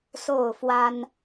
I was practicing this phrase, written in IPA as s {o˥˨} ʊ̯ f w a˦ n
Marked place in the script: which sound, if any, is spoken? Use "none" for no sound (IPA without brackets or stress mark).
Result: o˥˨